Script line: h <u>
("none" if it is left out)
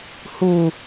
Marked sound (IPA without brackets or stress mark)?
u